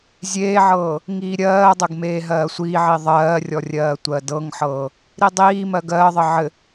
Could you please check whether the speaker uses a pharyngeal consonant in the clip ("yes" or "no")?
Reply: yes